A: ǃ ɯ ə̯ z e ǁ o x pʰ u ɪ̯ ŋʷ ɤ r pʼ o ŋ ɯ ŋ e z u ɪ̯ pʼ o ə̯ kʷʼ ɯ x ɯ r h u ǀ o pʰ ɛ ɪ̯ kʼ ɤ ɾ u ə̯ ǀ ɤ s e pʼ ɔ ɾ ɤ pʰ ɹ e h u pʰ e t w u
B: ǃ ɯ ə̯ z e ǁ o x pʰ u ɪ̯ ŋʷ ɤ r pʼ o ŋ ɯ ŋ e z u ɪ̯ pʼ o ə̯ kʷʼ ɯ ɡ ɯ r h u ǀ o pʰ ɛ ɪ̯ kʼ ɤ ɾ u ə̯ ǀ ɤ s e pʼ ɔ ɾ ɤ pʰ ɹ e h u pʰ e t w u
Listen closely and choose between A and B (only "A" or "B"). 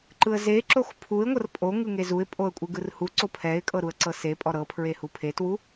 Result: B